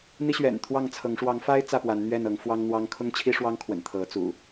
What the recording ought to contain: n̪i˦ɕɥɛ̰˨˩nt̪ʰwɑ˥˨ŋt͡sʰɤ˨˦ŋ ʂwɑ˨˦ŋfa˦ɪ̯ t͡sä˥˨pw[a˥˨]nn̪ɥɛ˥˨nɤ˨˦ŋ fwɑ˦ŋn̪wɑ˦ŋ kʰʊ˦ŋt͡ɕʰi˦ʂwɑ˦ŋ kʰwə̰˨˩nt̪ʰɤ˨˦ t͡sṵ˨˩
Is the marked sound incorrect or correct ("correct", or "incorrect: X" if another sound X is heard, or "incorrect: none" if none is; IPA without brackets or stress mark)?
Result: incorrect: a˨˦